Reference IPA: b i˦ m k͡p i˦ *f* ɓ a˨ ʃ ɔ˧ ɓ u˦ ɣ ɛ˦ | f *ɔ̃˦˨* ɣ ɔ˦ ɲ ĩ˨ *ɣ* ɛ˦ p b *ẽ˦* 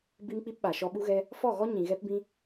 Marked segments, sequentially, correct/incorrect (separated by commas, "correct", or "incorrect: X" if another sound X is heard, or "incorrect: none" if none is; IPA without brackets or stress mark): incorrect: p, incorrect: ɔ˦˨, correct, incorrect: ĩ˦